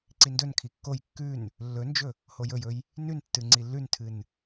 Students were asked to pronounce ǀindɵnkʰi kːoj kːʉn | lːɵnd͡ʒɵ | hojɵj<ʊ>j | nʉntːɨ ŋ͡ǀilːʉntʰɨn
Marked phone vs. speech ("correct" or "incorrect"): incorrect